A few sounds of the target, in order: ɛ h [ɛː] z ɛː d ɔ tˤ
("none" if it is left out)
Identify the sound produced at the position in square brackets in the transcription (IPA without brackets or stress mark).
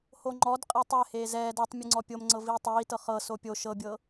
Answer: eː